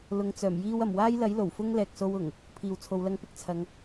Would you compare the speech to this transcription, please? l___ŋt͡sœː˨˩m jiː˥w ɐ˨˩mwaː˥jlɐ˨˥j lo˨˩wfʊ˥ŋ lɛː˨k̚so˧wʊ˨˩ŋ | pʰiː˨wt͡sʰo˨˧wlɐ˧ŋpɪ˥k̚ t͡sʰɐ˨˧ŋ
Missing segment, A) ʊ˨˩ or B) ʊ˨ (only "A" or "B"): B